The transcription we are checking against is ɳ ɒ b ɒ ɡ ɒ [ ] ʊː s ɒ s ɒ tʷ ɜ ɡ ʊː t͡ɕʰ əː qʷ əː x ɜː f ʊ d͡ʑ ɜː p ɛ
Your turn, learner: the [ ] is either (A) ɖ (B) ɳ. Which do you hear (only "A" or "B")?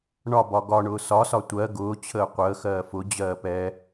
B